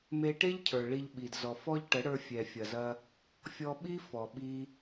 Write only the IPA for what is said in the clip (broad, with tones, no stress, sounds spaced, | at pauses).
m e˦ ʈ e˦ ʎ cʰ ə˞˨ ɭ i˧ ʎ ɓ i˨ d z ɔ˨ f ɔ˦ ʎ ʈ ə˨˦ ɽ ə˞˧ fʲ ɛ˨ fʲ ɐ˨ z ɐ˧ | fʲ ɔ˧ ɓ i˦ f ɔ˨ ɓ i˧